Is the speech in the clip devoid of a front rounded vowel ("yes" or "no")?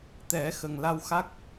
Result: yes